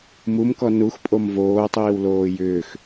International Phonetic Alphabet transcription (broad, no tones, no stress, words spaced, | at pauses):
mumkɔ nuxpʼom voːtˤiːwloː jʏːx